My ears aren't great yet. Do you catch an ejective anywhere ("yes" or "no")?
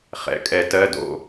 yes